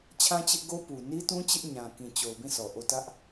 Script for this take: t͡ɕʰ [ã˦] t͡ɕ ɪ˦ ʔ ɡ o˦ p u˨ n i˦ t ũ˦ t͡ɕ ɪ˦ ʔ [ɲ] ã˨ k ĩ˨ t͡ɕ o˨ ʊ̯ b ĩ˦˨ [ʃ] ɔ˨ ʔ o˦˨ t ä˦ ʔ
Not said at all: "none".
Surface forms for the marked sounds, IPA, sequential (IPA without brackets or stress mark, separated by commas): ã˦, ɲ, s